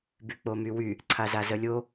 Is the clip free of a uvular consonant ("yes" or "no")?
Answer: yes